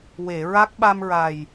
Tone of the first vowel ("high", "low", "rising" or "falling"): low